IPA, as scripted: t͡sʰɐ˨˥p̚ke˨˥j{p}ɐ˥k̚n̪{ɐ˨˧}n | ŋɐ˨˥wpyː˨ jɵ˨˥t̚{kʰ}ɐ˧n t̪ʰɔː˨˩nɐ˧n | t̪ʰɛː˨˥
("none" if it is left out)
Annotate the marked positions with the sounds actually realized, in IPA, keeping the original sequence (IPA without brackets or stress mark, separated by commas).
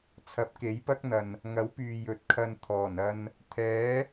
p, ɐ˨, kʰ